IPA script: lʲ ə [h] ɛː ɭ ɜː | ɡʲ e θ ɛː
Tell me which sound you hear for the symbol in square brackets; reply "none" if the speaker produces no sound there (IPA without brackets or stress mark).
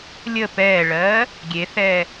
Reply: p